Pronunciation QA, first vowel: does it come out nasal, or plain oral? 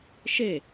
oral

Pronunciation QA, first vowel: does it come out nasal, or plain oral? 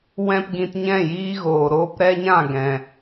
nasal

